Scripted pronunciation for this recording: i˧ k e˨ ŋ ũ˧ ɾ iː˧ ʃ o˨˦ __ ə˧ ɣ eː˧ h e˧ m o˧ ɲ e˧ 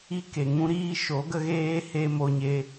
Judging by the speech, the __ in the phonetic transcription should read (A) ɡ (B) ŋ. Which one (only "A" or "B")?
A